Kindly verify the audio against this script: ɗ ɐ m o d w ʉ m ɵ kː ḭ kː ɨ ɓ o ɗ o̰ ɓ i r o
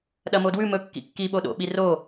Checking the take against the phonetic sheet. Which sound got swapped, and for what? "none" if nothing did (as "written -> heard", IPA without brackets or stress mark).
ɨ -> i